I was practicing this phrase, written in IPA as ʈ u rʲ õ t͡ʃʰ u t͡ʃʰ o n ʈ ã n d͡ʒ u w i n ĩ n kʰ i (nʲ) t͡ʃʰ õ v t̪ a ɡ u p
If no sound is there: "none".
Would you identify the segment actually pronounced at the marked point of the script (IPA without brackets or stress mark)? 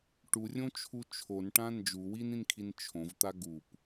n